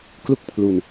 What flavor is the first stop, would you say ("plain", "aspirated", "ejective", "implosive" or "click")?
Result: plain